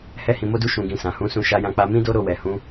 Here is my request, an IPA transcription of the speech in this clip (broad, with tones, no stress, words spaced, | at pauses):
hɛ˦hĩ˧mo˦du˦ ʃũ˧ɡĩ˧sã˨ hũ˨˦sũ˧ ʃa˧jã˧k͡pa˧ mĩ˦do˦ɾo˦˨wɛ˨ hũ˨˦